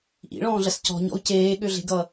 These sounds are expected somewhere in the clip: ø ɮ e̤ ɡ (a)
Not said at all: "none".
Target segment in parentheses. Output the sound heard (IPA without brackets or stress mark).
ʌ